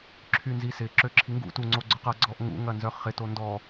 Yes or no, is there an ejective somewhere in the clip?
no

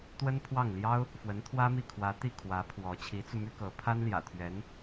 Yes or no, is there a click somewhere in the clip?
no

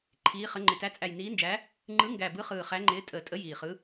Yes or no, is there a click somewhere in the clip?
yes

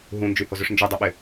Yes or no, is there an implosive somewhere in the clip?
yes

